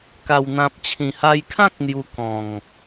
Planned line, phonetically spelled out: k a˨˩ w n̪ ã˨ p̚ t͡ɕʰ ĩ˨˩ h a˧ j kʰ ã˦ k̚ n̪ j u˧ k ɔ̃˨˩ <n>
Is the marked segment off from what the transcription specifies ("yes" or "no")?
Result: yes